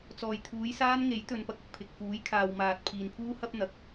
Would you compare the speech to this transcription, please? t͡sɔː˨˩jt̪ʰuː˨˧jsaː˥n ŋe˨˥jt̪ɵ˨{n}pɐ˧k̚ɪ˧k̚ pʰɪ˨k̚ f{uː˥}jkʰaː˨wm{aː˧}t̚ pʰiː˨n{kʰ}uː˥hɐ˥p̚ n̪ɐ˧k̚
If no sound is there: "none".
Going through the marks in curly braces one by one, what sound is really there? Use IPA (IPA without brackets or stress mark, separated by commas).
n, uː˨˥, aː˨, pʰ